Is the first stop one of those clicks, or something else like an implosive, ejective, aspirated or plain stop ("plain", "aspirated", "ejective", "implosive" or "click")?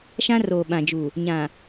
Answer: implosive